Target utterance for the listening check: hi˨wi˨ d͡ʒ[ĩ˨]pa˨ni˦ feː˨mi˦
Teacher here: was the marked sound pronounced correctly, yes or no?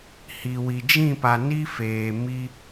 no